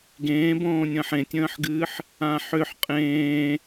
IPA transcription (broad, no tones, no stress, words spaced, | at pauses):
ɡẽːbõːnʲə̃ːħ ẽtʲə̃ːħɡɨːħ | ãħʏħ qʼẽː